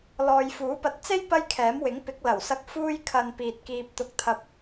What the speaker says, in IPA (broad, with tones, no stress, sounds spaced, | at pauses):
l ɔː˨ j f uː˨˥ p ɐ˧ t̚ t͡s e˥ j p ɐ˥ j kʰ ɛː˨˥ m w ɪ˨˥ ŋ p ɪ˨˥ k̚ l ɐ˨˩ w s ɐ˧ k̚ f uː˧ j kʰ ɐ˨ n p iː˨ t̚ k iː˧ p̚ t̪ ʊ˧ k̚ t̪ʰ ɐ˧ p̚